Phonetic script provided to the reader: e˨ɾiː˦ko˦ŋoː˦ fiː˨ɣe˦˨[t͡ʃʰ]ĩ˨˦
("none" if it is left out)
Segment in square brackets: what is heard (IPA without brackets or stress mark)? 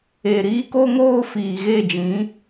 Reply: d͡ʒ